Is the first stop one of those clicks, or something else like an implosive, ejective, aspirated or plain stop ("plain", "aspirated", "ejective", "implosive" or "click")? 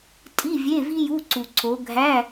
ejective